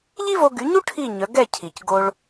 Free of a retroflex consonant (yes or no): no